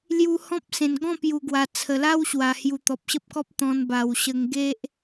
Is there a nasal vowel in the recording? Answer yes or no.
yes